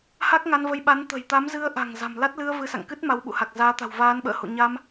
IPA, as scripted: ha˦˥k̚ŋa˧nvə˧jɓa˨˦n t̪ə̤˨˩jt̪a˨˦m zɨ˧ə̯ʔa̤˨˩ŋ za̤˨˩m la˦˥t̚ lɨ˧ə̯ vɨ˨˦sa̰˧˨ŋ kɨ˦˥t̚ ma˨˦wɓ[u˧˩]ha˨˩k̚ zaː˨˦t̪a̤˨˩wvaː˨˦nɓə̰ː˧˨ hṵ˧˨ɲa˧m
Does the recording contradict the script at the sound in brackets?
yes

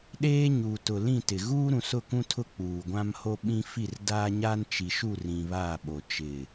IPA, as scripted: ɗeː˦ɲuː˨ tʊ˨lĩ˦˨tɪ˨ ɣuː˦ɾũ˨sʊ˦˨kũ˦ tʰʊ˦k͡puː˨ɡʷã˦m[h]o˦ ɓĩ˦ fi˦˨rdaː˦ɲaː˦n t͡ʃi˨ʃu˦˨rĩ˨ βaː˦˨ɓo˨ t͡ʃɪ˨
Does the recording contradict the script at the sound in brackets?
no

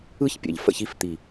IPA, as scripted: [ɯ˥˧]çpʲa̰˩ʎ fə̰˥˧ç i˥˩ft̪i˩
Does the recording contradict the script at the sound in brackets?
no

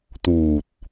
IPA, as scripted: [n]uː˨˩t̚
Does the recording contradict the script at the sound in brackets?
yes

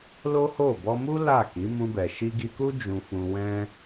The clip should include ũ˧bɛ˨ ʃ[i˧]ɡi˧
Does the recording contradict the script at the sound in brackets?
no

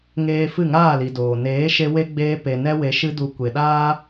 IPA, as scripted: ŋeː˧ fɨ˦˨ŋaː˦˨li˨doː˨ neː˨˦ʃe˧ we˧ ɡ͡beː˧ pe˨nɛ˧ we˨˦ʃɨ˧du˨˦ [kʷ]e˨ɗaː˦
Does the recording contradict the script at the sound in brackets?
no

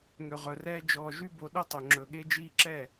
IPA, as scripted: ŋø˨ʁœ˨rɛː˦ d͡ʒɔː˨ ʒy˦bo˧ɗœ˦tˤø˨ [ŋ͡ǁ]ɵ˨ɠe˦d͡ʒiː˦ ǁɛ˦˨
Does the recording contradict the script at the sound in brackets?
no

